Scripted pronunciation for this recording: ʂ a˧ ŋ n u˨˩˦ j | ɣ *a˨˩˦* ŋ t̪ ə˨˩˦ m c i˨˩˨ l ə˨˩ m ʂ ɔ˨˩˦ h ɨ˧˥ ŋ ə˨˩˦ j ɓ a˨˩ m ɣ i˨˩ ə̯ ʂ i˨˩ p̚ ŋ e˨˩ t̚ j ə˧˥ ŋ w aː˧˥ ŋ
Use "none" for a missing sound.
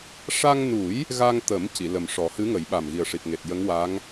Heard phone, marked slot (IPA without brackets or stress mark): a˧